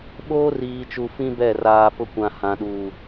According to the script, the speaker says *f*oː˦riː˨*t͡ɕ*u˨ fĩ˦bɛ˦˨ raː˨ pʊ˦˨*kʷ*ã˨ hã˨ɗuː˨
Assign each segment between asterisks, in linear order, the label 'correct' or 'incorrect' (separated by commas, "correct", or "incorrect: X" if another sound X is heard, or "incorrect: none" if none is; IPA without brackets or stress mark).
incorrect: ɓ, incorrect: t͡ʃ, correct